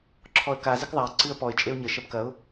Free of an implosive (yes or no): yes